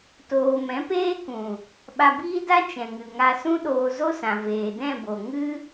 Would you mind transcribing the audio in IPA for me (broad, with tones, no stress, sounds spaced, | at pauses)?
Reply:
t oː˧ m ɛ̃˨˦ p eː˦ k ũ˨ | ɓ a˧ b iː˦ d a˦ t͡ʃ ɛ̃˨ ŋ ɨ˨ ŋ a˧ s ũ˦ ɗ oː˧ z o˦ s ã˨ v eː˨ d ɛ̃˦˨ b o˨ ŋ ɨ˦